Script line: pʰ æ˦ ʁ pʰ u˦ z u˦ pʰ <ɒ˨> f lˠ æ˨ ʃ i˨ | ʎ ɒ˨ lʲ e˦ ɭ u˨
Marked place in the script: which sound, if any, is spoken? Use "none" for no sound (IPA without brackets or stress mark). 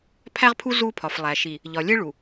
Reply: ɒ˨